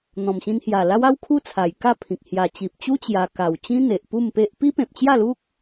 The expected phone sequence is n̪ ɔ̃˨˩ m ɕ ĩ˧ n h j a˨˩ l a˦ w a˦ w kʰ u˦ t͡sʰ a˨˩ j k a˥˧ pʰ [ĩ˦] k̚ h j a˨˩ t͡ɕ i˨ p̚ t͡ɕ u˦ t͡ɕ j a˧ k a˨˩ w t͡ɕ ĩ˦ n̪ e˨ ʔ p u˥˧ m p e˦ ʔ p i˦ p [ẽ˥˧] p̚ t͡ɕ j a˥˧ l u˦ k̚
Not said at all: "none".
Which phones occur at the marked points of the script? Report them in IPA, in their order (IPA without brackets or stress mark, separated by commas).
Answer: ĩ˨, ẽ˨